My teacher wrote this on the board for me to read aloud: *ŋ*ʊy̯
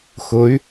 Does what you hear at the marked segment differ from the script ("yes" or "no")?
yes